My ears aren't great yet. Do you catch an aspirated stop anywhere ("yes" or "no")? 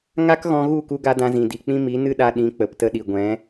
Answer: no